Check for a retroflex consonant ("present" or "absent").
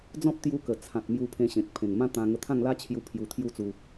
absent